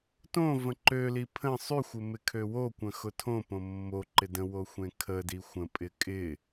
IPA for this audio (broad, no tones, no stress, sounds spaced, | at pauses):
t õ v ə̃ ǃ ø l i pʰ ə̃ sˤ y xʷ ɪ m ɪ kʰ ø w o kʷ ə̃ x ʊ tʰ õ p õ mː o ǃ ɪ d ə̃ w o xʷ ẽ kʰ ə d i xʷ ə̃ pʼ ɪ kʼ ɪ